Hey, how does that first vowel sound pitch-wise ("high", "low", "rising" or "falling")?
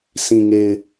low